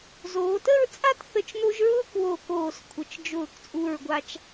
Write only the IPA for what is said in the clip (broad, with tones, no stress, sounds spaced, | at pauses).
z oː˩˧ t ə˥˧ ɹ t͡sʼ a˥ t θ ə˧˩ t͡ʃ n o˧ ʒ ɹ ʊː˥ k w o˧˩ k oː˧˩ s kʷʰ ə˩˧ t͡ʃ d͡ʒ ʊː˧˩ k t͡sʼ u˧˩ ɹ ɡʷ a˧ t͡ʃ